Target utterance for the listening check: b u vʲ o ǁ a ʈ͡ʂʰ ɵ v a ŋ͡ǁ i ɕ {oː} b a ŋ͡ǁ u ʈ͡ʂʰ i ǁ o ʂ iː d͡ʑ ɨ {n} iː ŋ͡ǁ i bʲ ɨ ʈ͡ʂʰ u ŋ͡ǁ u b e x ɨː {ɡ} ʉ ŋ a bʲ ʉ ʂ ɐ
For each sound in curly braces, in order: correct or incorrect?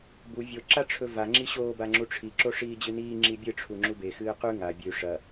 correct, correct, incorrect

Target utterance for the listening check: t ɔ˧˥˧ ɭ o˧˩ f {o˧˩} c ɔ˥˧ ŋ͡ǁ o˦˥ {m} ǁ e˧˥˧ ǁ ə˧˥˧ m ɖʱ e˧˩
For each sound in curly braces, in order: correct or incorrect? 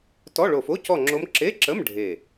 incorrect, correct

